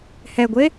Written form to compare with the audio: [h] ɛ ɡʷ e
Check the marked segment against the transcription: correct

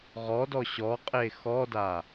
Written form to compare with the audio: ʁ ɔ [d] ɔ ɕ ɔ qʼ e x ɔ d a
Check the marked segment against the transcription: correct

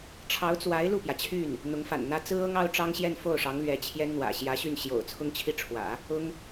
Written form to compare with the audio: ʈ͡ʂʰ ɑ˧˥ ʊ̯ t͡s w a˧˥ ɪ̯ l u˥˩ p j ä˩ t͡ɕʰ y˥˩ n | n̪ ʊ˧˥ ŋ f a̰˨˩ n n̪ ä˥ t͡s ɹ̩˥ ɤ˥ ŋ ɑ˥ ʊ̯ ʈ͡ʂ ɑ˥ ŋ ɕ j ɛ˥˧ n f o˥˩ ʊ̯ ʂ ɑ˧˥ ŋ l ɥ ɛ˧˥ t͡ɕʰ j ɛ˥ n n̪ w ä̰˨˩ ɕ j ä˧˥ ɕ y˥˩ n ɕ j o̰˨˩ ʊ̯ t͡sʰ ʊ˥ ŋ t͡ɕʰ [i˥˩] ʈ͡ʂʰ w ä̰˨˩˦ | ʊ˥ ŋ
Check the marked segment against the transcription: correct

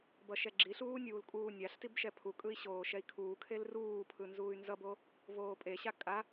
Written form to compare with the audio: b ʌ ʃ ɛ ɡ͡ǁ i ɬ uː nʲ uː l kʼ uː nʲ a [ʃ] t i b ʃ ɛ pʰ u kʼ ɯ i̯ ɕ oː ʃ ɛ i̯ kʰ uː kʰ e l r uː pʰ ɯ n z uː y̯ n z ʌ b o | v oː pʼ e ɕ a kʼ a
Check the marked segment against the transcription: incorrect: ɬ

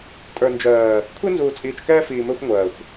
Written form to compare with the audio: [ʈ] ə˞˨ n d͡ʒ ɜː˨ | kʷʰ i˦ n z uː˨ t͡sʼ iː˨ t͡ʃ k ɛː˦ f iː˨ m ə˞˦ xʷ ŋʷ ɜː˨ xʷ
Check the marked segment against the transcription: incorrect: tʼ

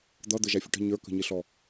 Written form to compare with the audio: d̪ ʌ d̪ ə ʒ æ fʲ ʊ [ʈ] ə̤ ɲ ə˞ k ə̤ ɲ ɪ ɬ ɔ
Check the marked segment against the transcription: correct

